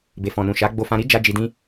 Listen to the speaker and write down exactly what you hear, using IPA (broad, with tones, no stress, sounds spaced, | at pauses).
b e˨ f ɔ̃˨ n ũ˨ ʃ a˨˦ ɡ͡b o˧ f ã˧ ɾ i˦ d͡ʒ a˦ d͡ʒ i˧ d ĩ˦